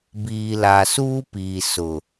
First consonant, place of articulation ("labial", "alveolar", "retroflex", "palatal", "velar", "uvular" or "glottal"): labial